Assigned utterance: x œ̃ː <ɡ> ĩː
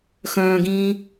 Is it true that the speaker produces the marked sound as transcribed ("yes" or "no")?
yes